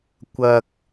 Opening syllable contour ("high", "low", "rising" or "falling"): low